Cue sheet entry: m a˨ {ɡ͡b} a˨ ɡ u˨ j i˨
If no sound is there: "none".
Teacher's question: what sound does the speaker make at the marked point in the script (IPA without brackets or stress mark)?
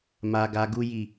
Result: ɡ